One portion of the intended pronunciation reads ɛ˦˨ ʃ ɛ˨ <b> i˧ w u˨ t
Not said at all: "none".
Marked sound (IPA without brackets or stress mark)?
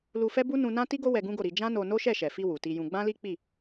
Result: f